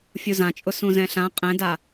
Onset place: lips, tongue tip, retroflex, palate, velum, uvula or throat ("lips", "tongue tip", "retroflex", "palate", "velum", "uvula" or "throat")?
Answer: lips